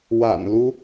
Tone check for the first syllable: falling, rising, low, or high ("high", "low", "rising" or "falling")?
low